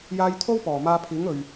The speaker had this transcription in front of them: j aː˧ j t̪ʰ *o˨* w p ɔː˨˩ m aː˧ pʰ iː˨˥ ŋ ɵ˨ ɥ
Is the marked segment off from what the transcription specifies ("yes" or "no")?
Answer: yes